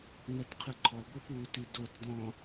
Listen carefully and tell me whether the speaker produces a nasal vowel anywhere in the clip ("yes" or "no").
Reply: yes